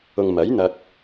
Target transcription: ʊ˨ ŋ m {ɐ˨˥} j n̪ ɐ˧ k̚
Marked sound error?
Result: no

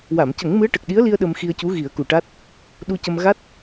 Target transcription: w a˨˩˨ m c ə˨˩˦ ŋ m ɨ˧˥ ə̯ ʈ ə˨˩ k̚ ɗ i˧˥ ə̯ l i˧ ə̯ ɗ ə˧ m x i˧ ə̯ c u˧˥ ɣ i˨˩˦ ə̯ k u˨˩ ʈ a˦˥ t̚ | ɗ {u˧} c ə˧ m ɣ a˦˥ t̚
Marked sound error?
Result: no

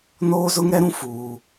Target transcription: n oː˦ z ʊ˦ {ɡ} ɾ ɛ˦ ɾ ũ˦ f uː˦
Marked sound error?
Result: yes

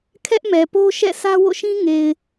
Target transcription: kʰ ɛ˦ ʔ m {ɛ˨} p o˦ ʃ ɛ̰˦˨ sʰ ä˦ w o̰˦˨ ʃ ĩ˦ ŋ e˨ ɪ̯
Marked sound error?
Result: no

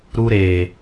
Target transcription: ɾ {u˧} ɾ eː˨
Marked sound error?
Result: no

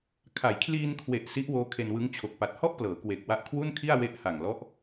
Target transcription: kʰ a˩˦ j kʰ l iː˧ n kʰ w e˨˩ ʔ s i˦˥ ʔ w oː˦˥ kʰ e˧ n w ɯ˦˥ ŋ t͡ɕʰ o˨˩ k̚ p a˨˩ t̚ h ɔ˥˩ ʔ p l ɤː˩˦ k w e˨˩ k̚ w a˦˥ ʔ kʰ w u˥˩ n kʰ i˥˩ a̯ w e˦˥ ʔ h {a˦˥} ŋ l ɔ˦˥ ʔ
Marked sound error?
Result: yes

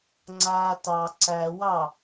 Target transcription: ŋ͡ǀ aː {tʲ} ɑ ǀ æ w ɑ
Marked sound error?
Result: yes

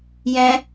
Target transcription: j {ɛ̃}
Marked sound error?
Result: no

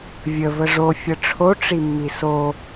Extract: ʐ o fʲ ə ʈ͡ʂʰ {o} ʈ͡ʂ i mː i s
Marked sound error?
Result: no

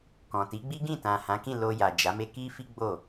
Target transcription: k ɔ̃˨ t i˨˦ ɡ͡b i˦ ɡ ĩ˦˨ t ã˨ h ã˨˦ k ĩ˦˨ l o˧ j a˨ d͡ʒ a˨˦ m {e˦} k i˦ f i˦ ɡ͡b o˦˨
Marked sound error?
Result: no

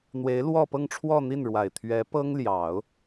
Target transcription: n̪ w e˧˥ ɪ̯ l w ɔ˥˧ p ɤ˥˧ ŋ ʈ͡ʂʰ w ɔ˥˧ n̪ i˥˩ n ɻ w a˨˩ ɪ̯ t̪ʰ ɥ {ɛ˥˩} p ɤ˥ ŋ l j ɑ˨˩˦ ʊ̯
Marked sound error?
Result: yes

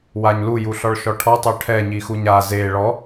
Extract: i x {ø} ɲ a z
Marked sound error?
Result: yes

